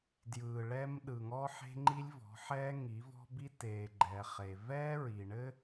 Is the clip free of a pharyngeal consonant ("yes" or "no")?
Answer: no